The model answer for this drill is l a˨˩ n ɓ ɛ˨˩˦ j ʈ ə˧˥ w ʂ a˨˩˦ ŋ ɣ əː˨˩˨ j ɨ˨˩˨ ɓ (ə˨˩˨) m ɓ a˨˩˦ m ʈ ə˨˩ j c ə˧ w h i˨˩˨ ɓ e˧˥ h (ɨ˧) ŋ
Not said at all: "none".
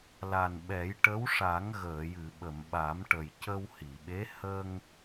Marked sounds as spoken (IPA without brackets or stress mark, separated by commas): ə˨˩˨, ə˧